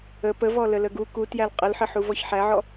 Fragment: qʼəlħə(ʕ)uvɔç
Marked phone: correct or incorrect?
incorrect